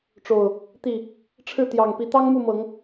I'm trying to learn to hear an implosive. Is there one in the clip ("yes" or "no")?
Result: no